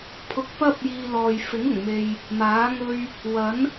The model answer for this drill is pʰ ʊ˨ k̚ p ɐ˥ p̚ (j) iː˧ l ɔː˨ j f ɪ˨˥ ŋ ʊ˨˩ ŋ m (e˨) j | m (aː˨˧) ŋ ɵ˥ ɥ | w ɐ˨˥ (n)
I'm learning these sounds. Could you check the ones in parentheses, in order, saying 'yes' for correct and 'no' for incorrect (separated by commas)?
yes, yes, no, yes